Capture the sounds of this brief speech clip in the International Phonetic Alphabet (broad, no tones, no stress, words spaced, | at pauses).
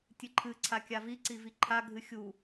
tʲɨǃʰɨ ǀʰakʲavi ǀiviǃʰa ɡʱɨxʲu